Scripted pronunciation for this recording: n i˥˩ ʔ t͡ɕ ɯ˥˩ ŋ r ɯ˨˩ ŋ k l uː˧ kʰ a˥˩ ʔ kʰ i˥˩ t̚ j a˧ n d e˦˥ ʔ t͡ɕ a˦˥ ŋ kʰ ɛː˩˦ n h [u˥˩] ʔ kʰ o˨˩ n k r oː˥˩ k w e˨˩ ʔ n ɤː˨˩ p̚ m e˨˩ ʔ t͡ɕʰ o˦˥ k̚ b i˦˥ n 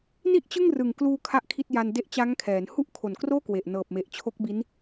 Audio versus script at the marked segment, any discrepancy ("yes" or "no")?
no